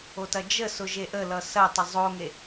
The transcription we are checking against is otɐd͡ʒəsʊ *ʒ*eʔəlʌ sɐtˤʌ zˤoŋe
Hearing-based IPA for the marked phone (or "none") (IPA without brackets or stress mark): ʒ